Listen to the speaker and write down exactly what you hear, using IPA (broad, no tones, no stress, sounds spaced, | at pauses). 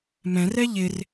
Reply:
m ɛ̃ r ɛ ʎ ɪ r